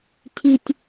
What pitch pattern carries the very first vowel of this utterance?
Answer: low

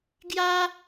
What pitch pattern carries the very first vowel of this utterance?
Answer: high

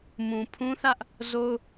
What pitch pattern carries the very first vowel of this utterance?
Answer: low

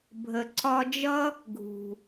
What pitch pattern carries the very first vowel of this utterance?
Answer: low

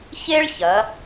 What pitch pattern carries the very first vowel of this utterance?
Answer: high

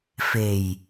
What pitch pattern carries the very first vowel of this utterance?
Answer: low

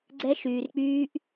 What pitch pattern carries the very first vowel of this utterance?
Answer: high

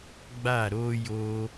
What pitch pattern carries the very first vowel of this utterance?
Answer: falling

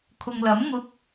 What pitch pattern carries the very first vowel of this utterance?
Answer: low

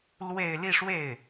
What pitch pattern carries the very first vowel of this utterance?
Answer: falling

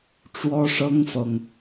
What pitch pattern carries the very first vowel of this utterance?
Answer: high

